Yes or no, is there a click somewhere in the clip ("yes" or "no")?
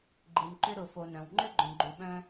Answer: yes